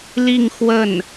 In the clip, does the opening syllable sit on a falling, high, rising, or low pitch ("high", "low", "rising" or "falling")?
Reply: falling